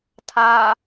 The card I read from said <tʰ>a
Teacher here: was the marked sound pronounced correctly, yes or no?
yes